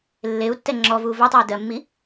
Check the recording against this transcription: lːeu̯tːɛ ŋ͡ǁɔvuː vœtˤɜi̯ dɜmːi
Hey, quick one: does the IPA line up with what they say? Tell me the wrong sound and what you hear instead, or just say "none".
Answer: none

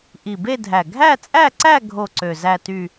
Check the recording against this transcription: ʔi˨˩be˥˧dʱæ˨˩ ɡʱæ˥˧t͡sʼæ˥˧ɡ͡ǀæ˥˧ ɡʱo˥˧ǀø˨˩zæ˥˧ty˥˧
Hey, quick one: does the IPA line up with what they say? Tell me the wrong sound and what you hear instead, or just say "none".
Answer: ɡ͡ǀ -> ǀ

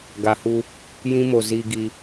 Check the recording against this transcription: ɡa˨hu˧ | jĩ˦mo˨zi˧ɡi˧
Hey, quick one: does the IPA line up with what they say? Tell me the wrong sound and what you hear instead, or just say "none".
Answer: none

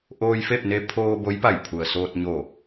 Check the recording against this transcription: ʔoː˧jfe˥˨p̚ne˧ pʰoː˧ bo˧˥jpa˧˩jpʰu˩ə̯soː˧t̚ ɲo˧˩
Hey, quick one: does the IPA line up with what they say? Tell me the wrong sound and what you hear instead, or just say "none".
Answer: none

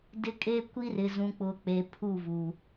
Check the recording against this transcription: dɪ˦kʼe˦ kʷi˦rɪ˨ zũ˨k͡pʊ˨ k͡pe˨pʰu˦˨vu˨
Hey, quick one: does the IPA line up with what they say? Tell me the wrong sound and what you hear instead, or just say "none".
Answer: none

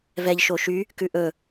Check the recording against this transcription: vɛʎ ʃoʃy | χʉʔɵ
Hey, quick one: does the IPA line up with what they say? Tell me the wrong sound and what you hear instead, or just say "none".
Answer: χ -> k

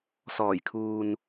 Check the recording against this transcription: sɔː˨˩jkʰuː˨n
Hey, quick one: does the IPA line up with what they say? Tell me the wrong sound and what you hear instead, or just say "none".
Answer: none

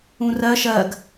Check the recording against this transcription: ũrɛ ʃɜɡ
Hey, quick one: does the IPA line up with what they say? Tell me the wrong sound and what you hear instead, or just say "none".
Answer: ɛ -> ɜ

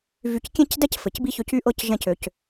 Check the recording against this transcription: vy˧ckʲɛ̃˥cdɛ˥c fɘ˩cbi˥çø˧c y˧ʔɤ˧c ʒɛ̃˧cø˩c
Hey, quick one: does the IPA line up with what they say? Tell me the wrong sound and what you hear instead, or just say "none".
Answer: none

